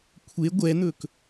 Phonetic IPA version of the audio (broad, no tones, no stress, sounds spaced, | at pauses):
kʷʰ e ɡʷ ɛ n̪ ɵ k